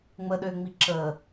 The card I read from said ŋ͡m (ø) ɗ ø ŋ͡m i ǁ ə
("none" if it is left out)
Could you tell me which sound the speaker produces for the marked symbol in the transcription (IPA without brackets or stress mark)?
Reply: ə